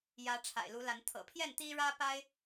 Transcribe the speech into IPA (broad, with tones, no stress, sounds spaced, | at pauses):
j ä˨˦ ʈ͡ʂʰ a̰˨˩ ɪ̯ l u˨˦ l a˨˦ n t̪ʰ ɤ̰˨˩ pʰ j ɛ˥˨ n t̪ i˦ ɻ ä˦ p a˦ ɪ̯